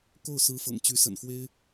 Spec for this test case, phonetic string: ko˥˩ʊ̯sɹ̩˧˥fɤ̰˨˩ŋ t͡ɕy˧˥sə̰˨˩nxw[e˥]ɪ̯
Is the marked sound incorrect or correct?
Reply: correct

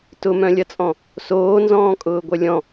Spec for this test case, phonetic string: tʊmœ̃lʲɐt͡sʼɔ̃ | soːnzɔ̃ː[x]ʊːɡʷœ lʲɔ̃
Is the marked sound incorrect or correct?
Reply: incorrect: kʼ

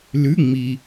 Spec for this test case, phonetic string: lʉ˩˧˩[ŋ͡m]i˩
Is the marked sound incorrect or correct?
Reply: correct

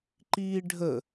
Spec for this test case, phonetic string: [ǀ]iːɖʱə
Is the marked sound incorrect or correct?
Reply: incorrect: ǃ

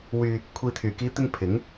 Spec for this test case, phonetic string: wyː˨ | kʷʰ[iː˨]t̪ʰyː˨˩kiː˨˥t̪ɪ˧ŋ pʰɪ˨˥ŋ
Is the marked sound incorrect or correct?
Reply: correct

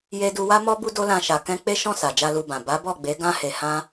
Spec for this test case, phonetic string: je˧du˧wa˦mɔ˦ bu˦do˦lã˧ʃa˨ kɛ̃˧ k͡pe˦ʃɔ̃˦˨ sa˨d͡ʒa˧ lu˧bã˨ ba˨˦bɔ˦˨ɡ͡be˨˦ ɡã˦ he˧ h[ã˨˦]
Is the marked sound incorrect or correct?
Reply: incorrect: ã˦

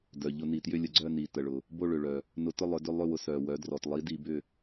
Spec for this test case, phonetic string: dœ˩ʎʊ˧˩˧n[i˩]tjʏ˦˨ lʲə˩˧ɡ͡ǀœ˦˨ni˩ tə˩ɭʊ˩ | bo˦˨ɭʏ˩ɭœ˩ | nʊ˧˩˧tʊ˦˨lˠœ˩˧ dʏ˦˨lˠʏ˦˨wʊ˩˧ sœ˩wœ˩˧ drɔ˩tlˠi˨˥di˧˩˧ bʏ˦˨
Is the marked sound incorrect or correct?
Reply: correct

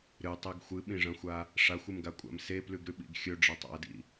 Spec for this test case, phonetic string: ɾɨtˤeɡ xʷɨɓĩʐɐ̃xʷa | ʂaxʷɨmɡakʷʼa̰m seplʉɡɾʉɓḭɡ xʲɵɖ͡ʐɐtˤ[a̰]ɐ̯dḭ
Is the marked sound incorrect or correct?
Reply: correct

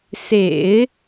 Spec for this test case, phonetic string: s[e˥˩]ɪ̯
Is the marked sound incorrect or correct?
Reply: incorrect: ḛ˨˩˦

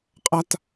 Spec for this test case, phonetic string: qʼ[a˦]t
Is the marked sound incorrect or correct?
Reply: correct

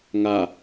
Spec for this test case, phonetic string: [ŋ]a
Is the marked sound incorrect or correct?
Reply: correct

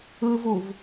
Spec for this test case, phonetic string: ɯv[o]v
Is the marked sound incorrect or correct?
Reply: incorrect: u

